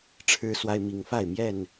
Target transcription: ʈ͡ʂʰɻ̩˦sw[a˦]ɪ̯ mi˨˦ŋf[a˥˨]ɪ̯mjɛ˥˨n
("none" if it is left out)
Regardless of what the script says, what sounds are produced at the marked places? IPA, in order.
a˦, a˥˨

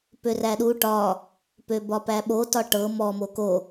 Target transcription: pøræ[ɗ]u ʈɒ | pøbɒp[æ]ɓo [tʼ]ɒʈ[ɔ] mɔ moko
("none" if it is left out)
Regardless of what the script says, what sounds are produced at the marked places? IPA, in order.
ɗ, æ, t, ɤ

